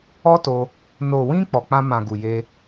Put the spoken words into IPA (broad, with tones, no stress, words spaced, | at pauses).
ɔ˦to˧ | no˨wĩ˧ k͡pɔ˨k͡pã˧mã˨ɡu˨ je˧